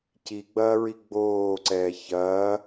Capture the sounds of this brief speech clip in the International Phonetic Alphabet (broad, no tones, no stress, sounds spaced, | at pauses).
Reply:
c i ɡ͡b ɐː ɹ i ɡ͡b oː ǀ ɛː ç ɐː